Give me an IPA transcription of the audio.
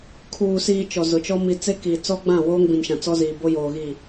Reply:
kʰ uː˨ s iː˨ t͡ʃ ɔ˨ z ʊ˨ t͡ʃ ɔ˦ m i˨ t͡s e˦ k i˨ t͡s ɔ˦ ɡ͡b ã˦˨ w oː˦ ŋ b ĩ˨ n ʃ ã˨ t͡s ɔ˦ z iː˨ b o˦ j oː˨ ɣ i˦˨

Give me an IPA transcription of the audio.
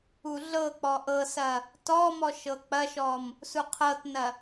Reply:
u ɮ ɤ k͡p ɔ ʔ ɤ s ɐ | t ɔ m ɔ ʃ ɤ k͡p ɐ ʃ ɔ m | s u qʰ ɤ t n ɐ

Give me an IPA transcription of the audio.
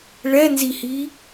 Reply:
ɭ ɛ n z i h i

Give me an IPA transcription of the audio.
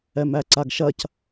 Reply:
ɛ m æ ǀ a ɡ ʃ ɐ c

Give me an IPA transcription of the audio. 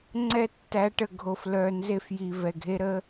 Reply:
ŋ͡ǀ ɛ˦ tː æ˨˦ ʈ ə˨ ɡʱ o˨ f l œ˨ n z e˦ f j i˨ v ɛ˨ ɡʱ e˦ ɾ ə˦

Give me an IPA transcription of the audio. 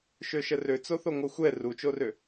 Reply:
ʃ ø ʃ ə r ø t͡s o θ o ŋʷ əː xʷ ɛ r u t͡ʃ o r ø

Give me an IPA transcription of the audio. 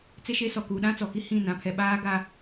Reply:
t͡s e˦ ʃ e˦ s ɔ˨ k uː˨ ɗ ã˦ t͡s ɔ˨ k i˦ h ĩ˦˨ n ã˨ pʰ ɛ˨ ɓ aː˦ ɡ a˦

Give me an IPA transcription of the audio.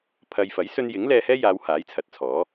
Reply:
pʰ ɐ˧ j f ɐ˨˥ j s ɵ˧ n j ɪ˨˥ ŋ l ɛː˧ h ɛː˥ j aː˨˧ w h aː˨˥ j t͡sʰ ɐ˨˥ t̚ t͡sʰ ɔː˨˥

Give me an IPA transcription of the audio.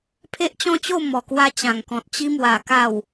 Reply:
pʰ e˦ ʔ t͡ɕ ɔ̃˥˧ t͡ɕ o˥˧ m ɔ˨˩ k w a˧ t͡ɕ ã˨˩ ŋ k ɔ̃˨ t̚ t͡ɕ i˧ m w a˨˩ k a˨˩ w

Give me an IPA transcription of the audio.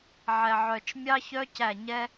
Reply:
ʕ ɛ˨ ʕ œ˨ t͡ʃ mʲ ɑ˦ ç œ˦ c æ˦˨ ɲ ɛ˦

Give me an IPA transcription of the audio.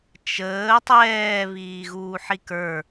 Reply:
t͡ʃ əː tˤ ɛː β iː ɣ uː ħ i k ə˞

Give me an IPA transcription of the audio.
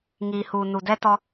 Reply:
ŋ iː˨ h uː˨ n u˨ d ɛ˦ t ɔ˦

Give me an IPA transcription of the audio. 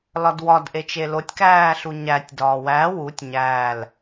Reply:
l ɒ d w ɒ d ʔ e t͡ʃ e l o tʲ k æː ɬ u ɲ æ tʲ d ɒː w æ w u tʲ ɲ æ l

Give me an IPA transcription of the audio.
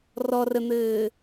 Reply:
r ɔ r ə n̪ ɘː

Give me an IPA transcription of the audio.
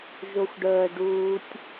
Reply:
ʒ o xʷ ɖ əː ɖ uː tʲ

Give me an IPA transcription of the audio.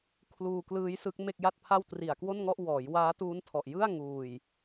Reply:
kʰ l uː˧ k l ɯː˦˥ j s ɯ˦˥ k̚ m e˥˩ k̚ j a˥˩ t̚ pʰ a˥˩ w t r i˨˩ a̯ k w o˥˩ n ŋ ɔ˥˩ ʔ w ɔː˩˦ j w aː˦˥ t uː˦˥ n tʰ ɔ˨˩ ʔ j ɯ˥˩ a̯ ŋ uː˨˩ j

